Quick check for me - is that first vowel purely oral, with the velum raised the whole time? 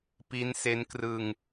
yes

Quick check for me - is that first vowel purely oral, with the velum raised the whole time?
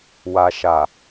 yes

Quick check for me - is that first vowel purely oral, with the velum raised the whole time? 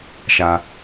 yes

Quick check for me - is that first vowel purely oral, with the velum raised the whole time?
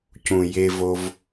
no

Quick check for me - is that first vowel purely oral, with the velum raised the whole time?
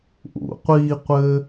yes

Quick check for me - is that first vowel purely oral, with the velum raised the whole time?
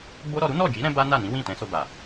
yes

